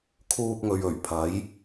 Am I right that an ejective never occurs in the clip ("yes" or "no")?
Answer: yes